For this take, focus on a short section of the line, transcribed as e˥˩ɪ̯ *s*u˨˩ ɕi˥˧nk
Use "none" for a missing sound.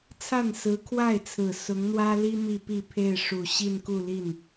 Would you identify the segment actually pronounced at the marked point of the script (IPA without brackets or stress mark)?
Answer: ʂ